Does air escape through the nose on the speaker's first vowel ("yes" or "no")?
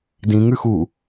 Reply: yes